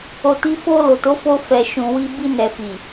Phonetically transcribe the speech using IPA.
o˧ti˦ fo˧lo˨to˨˦fo˧ fɛ˨ʃũ˨wi˧ bi˧nɛ˨fi˨

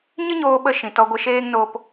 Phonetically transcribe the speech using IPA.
ɲɨ˦ɲoː˧ ɓə˧ ʃĩ˨tɔ˧ ɡʷə˨ʃeː˧ŋnoː˨p

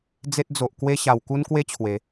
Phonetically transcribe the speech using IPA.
d͡ze˦t̚ d͡zo˨ʔ kwe˦ ɕa˧w ku˦nkwe˦t͡ɕʰwe˨˦

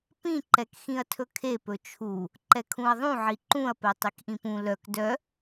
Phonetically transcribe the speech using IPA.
pĩǃɛkxĩɐ̯ tʰɵkʰepɵ t͡ʃʰu | ǃɛkʰũɐ̯ðˤũ ʕiǃũɐ̯pɛ tˤikʔĩpũ lœk dœ

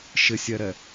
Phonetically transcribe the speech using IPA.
ʃɪsʲɛɾɛ

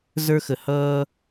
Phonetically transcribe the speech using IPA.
zə˞˦xə˧ hʌː˦

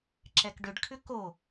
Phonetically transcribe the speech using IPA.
ǁɛkɖʏɖkʰʏ ko

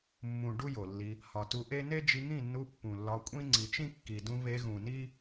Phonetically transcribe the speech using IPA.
mːũ˨ ɖu˦jo˨lːi˧ | hɒ˨tu˧ʔe˦ ne˦d͡ʒi˧ŋĩ˦˨nːu˧ pːũ˨lːɒ˧kʷʼĩ˦ ŋ͡ǀi˨t͡ʃĩ˦kːi˨dũ˧ βe˧ɣũ˨ni˦

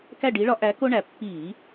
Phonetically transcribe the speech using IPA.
kæ˦˨ɖi˨˦ɭɒ˨˦ ʔæ˨˦ko˦ɳæ˨˩ pːi˧˩˧

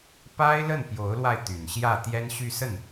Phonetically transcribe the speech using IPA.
pa˥ɪ̯ lə˥˩npjo˧˥ʊ̯lwa˧ɪ̯ t̪y˨˩nɕjä˥˩ t̪jɛ˥nɕy˥˧sə˥˩n

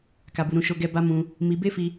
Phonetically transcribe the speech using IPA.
ka˧bu˧ɾũ˧ ʃo˦ɡɛ˦ ba˦mũ˧ | mi˧be˦fi˧

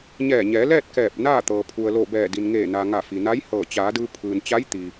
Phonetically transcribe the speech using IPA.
ɲɛː˧˩ɲɛː˩˧lɛː˥˨t̚ kɛː˧˩p̚naː˥˨ t̪ɤː˩ pʰu˩ə̯loː˧˩bɛː˧˩ di˩nŋeː˧˩ na˩ ŋa˧˩fi˩na˧˥jhɤː˧˩ t͡ɕaː˩˧dɯː˧ pʰɯː˩n t͡ɕa˧˥j t̪i˩

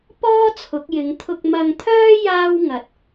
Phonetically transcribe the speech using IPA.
pɔː˥ t͡sʰʊ˨˥k̚jɪ˨˥ŋ t̪ʰʊ˧k̚mɐ˧ŋt̪ʰœː˥ jaː˥wŋɐ˨˥t̚

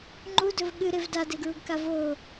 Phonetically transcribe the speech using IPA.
ŋ͡ǃudɵv ɠɨɾev dadeɡɹuɡka vo

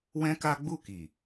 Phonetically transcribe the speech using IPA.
wɛ̃˦ ka˦ɡ͡bu˦˨ ki˨

